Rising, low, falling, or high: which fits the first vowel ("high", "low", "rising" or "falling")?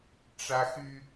high